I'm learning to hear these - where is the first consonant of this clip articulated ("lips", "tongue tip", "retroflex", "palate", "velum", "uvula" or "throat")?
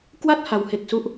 velum